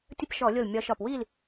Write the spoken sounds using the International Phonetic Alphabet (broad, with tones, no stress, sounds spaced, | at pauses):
tʲ ə˧˥˧ p ʃ ɔ˧˩˧ lʲ o˧˩ l mʲ ɒ˨˦ ʃ ɒ˧˩ p w iː˥˨ l